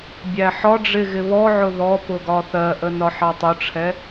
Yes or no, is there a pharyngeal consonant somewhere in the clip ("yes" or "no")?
yes